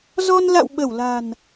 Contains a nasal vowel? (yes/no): no